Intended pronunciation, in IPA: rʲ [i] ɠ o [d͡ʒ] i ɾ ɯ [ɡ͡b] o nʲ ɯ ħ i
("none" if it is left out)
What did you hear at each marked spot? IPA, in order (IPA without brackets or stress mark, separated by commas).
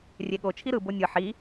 e, t͡ʃʰ, b